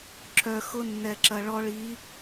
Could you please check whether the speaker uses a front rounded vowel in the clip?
yes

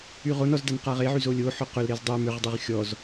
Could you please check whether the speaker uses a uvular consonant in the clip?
yes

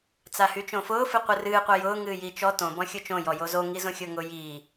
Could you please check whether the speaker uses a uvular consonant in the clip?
yes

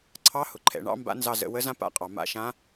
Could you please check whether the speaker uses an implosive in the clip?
no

